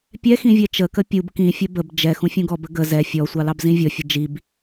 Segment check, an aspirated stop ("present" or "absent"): absent